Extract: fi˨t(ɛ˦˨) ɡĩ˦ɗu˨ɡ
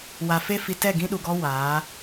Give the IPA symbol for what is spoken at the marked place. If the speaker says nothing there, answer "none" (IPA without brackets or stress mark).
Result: ɛ˦˨